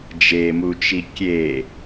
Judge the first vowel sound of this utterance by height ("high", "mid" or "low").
mid